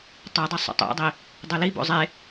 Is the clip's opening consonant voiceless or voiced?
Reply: voiceless